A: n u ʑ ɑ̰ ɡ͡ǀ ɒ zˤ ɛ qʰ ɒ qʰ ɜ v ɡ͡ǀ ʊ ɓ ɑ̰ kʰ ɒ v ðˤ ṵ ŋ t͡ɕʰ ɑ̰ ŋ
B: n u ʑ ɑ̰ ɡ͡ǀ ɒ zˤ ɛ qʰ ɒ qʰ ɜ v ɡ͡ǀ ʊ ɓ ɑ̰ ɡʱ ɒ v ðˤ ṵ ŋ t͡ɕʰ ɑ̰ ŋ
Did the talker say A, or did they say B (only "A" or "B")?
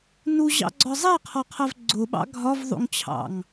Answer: B